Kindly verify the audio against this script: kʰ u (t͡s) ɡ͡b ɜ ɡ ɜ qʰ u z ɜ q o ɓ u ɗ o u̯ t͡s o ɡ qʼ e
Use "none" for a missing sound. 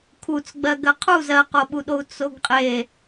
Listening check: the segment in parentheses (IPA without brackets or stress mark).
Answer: t͡s